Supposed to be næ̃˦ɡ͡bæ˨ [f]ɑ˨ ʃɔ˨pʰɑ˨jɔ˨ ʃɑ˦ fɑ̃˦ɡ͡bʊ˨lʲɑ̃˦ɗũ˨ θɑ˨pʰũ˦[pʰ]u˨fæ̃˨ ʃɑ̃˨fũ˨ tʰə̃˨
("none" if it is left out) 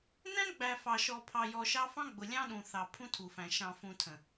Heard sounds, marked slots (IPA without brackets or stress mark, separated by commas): f, tʰ